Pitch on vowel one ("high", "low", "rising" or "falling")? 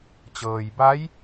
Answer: low